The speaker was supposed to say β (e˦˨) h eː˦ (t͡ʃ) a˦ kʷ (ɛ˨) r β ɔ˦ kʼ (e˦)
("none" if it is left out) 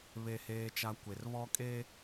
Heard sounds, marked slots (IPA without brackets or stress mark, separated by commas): e˦˨, t͡ʃ, e˨, e˦